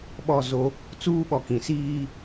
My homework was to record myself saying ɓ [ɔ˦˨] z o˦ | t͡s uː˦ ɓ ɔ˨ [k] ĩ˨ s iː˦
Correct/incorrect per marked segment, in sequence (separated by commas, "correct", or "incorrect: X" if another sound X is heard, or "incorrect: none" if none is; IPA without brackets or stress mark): correct, correct